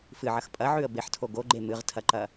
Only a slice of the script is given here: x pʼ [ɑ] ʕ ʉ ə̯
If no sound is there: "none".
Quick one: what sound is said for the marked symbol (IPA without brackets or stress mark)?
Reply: ɐ